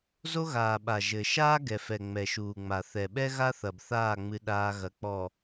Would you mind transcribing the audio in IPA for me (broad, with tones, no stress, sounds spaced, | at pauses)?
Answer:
z o˦ ɣ aː˨ ɓ a˨ ʒ ɘ˨ ʃ aː˦ ɡ ɛ˨ f ɛ˨ ŋ͡m ɛ˨ ʃ uː˨ ŋ͡m a˨ θ ɛ˨ ɓ ɛ˦ ɣ a˦ θ ɐ˨ b θ aː˦˨ ŋ͡m ɨ˦ ɗ aː˦ ɣ ɐ˨˦ k͡p ɔ˨